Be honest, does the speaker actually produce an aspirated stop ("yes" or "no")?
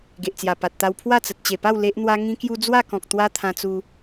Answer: yes